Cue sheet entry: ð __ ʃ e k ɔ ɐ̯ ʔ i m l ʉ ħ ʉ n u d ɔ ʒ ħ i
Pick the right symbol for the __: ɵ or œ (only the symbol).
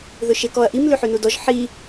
ɵ